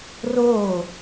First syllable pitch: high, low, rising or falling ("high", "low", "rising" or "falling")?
falling